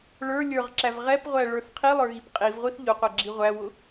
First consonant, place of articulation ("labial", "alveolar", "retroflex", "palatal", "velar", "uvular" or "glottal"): retroflex